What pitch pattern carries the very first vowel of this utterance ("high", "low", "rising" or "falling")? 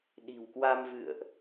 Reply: low